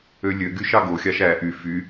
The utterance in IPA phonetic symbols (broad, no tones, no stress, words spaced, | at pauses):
ølʲøɡyʃ ɑɡoxʲɑʃ æ ʔy fy